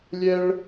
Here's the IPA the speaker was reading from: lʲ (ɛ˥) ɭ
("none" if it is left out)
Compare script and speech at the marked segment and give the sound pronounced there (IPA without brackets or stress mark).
ɛ˥